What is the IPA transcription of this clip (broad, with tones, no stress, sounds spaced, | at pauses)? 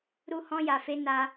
ɾ u˦ h ɔ̃˦ j a˧ f e˦ n a˦